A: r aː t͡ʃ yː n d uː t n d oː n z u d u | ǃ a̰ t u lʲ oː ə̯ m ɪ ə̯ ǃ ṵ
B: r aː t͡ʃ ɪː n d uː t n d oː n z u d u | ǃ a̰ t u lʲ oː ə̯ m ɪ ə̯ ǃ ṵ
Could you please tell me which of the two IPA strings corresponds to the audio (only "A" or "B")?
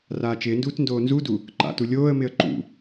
B